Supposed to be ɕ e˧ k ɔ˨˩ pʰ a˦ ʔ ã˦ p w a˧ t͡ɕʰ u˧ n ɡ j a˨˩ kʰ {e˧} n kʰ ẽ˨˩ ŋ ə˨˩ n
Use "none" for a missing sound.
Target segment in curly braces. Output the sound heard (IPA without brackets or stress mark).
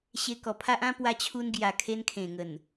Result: e˧